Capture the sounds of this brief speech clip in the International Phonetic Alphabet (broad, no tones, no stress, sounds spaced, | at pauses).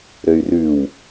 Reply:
ɾ ø y̯ r ʉ w